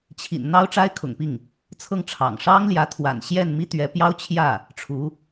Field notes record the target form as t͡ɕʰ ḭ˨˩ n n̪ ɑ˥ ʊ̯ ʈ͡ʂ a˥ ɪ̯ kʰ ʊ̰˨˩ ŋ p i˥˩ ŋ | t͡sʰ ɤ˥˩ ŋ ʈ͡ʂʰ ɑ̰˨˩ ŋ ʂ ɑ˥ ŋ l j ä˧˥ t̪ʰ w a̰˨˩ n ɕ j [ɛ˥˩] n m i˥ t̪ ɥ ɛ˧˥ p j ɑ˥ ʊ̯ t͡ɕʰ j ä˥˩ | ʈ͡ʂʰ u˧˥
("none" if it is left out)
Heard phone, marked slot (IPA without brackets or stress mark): ɛ˥˩